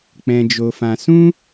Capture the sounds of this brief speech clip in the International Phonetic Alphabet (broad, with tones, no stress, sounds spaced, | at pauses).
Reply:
k͡p ɛ̃˧ d͡ʒ o˧ f ã˧ s ũ˦